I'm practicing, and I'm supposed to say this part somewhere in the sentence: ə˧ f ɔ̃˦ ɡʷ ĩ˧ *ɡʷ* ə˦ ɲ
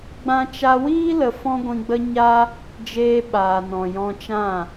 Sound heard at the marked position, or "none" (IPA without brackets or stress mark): ɡ͡b